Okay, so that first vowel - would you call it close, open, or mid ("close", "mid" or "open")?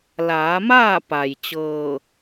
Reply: open